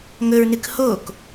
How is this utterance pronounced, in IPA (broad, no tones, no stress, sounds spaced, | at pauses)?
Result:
ŋ ɵ ɹ n ɨ k h o k